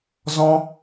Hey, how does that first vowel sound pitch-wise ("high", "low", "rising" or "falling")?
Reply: high